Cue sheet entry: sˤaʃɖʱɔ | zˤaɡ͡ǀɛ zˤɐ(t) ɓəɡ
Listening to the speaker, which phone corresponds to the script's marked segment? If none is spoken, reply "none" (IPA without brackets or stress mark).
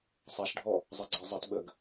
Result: t